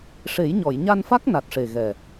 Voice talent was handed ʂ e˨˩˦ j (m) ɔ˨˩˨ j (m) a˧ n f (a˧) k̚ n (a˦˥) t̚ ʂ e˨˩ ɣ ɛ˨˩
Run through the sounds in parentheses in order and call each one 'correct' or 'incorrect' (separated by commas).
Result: incorrect, incorrect, incorrect, incorrect